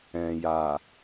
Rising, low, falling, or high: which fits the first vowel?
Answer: low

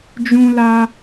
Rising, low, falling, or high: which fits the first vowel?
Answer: high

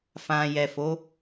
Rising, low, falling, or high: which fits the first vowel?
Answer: low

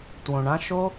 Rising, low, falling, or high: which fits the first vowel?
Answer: low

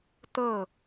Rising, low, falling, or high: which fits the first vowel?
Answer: falling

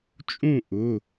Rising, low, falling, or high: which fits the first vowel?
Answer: falling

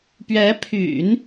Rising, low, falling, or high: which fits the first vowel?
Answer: rising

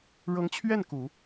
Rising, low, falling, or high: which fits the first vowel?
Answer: rising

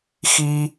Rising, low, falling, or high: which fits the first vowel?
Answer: high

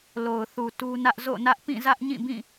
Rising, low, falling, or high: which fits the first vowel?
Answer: low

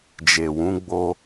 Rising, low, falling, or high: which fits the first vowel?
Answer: low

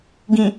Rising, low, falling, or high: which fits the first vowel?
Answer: low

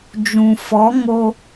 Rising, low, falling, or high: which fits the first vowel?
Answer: low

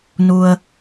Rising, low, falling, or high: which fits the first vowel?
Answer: low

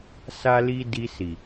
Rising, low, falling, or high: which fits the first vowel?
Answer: high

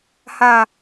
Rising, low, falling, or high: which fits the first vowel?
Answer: low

